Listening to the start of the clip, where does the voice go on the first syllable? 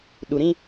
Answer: low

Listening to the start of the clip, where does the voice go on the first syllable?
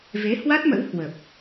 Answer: rising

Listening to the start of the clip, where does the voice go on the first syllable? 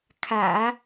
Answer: low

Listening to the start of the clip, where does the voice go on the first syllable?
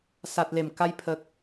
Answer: low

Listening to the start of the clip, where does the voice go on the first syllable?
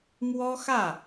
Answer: high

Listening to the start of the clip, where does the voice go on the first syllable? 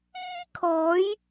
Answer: high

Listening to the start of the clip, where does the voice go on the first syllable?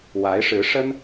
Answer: rising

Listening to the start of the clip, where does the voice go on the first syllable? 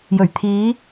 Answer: low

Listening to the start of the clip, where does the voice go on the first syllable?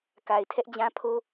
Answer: low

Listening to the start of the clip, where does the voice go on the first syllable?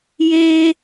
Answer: high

